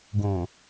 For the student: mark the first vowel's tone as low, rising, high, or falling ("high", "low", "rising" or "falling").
low